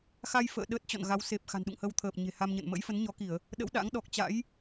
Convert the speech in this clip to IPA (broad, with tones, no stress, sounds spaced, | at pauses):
x a˧ j f ə̰ː˧˨ ɗ ə˦˥ t̚ t͡ɕ ɔ̰˧˨ n ɣ a˨˦ w s e˨˩ p̚ x a̤˨˩ n ɗ ṵ˧˨ ŋ h ə˧ w t̪ʰ əː˨˩ p̚ ɲ e̤˨˩ h a˧ m ɲ ə̰˧˨ n m ə̰˧˥ j f ə˨˦ n ɲ ɔ˨˦ k i˧˩˨ ə̯ | ɗ ə̰˧˥ w ɗ a̰˧˥ ŋ ɗ ɔ˨˩ k̚ t͡ɕ a̰˧˥ j